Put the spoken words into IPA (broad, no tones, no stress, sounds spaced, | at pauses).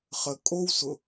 χ ə kʼ o w s ʊ